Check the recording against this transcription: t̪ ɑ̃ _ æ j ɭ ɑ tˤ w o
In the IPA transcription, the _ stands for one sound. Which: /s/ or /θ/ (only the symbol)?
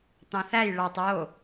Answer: θ